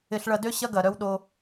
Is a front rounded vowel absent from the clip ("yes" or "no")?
no